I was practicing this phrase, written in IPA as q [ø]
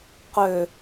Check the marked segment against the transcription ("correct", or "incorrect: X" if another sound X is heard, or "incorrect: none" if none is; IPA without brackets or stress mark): correct